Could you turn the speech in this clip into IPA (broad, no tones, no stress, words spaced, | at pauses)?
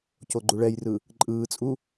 coɡ͡ǃuɭɛjrɯ | ǃʼɯːt͡sʼu